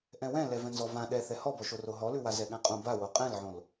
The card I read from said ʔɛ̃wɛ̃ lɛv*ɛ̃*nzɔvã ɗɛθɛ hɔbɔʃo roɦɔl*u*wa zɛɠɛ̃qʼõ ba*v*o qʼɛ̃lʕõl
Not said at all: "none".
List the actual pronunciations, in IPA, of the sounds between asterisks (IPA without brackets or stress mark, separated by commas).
ɛ̃, ʉ, w